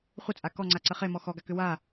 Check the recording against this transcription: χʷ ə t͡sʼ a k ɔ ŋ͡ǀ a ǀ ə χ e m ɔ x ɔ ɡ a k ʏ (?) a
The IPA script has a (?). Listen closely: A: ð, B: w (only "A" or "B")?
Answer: B